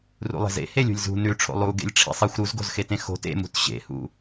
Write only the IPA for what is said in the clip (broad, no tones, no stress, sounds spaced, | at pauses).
r ṵ lˠ e̤ z ḛ h e lʲ ṳ lʲ z ṳ n ʉ ʈ͡ʂʰ o̰ lˠ u ɡ ḛ lʲ ʈ͡ʂʰ ḭ sˤ i xʷ ɾ u z ɡ o̤ z x e t ẽ x o̤ t ḛ m ṳ t ɕ ḛ h ṵ